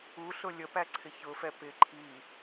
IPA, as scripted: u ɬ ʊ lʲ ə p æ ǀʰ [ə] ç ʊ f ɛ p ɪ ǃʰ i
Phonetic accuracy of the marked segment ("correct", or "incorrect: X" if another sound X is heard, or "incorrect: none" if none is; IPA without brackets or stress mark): incorrect: ɪ